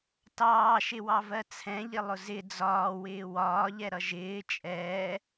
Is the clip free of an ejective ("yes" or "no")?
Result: no